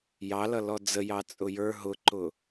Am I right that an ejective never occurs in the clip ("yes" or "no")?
no